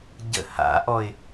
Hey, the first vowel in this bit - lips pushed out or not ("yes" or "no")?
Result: no